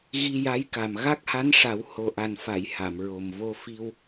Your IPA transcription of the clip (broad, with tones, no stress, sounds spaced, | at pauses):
ɣ i˧ j a˧˥ j k a˨˩ m ɣ a˦˥ k̚ h a˧˥ n ʂ a˨˩˦ w h o˨˩ ʔ a˨˩ n f a˨˩˨ j h a˨˩˨ m ɹ o˨˩ m v o˧ f i˧ w